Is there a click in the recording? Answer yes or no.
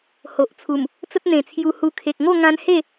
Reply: no